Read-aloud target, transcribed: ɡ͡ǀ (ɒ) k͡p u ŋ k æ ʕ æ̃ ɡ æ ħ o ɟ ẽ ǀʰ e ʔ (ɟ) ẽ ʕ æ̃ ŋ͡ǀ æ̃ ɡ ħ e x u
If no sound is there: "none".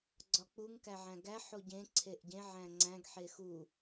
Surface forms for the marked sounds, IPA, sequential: ɒ, ɟ

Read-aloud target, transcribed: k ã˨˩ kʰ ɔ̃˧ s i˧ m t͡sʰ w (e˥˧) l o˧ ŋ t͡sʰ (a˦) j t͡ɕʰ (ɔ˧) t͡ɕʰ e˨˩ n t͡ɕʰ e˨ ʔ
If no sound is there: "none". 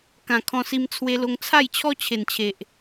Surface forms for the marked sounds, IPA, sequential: e˧, a˥˧, ɔ˦

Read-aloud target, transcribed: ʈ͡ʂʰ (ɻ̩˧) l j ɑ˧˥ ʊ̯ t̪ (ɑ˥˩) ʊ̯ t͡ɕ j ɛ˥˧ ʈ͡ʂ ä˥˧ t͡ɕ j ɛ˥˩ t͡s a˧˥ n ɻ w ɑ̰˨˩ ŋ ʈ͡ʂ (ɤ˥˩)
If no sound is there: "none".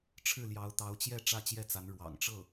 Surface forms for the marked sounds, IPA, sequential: ɻ̩˥˩, ɑ˧˥, ɤ˥˩

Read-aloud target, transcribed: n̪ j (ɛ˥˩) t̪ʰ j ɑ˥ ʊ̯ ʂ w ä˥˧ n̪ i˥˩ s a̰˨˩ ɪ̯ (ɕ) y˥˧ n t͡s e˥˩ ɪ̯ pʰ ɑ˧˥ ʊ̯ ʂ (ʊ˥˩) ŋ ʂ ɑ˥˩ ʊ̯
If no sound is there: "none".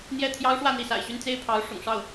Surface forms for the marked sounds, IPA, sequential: ɛ˥˩, ɕ, ʊ̰˨˩

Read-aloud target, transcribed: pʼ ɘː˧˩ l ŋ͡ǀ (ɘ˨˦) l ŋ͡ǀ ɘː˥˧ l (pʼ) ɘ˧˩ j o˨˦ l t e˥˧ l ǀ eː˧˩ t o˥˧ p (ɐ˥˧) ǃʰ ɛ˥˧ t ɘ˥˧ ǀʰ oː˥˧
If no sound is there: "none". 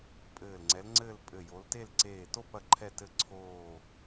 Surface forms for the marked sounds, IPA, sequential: ɛ˨˦, pʼ, ɐ˥˧

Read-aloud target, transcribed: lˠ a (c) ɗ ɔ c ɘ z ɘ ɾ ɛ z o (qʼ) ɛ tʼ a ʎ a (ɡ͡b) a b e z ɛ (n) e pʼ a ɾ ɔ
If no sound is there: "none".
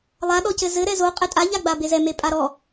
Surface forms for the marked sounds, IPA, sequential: none, qʼ, ɡ͡b, m

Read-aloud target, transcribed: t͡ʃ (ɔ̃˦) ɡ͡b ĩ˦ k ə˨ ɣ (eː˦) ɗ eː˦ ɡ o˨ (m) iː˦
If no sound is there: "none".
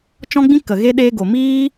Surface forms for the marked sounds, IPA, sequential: ɔ̃˦, e˦, m

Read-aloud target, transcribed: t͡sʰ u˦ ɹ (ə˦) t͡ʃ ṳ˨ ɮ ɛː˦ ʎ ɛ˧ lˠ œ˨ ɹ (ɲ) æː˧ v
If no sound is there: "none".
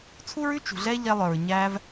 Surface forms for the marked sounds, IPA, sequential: ʉ˦, ɲ

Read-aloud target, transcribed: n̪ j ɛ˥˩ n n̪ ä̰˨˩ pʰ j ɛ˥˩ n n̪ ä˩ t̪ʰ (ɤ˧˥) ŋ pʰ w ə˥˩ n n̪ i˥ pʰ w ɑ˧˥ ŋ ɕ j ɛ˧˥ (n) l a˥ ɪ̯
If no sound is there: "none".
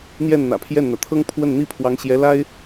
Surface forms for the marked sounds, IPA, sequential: ɤ˥, none

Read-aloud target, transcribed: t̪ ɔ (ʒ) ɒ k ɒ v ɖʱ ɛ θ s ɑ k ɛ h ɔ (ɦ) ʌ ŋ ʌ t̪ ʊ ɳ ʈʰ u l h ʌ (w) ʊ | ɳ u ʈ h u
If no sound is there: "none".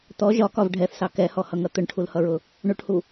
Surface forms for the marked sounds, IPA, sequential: ʒ, h, ɹ

